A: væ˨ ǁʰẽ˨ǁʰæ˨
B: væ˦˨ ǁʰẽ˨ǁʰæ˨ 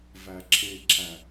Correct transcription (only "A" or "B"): A